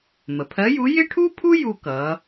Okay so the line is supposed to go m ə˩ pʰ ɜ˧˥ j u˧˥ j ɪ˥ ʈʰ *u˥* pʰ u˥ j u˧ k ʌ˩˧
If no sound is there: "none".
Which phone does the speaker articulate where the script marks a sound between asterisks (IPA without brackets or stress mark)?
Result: u˥